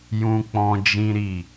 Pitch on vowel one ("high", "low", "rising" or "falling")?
high